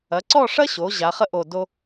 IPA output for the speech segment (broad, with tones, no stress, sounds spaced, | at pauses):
ɐ˩˧ ǀ ɔ˥˧ ʂ ɐ˥ ɕ o˩˧ ʑ a˩˧ χ ə˥ ʔ o˧˩ d o˥